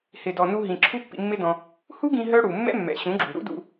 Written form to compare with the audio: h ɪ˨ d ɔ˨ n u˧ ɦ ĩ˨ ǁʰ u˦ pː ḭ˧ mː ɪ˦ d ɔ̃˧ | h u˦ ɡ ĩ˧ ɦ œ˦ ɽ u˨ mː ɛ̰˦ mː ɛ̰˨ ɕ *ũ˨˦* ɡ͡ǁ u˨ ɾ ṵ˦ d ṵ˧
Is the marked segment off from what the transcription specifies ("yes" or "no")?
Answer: no